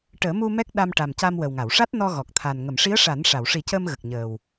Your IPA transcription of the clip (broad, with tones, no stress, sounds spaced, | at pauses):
ʈ əː˨˩˦ m u˧ m ɛ˦˥ k̚ ɗ a˧ m ʈ a˨˩ m c a˧ m w ə˨˩ w ŋ a˨˩˨ w ʂ a˦˥ t̚ n ɔ˧ ɣ ɔ˨˩ k̚ t̪ʰ a˨˩ n ŋ ə˨˩˨ m ʂ i˧˥ ə̯ ʂ a˨˩˦ n ʂ a˨˩˨ w ʂ i˨˩˦ c əː˧ m ɣ ə˨˩ k̚ ɲ əː˨˩ w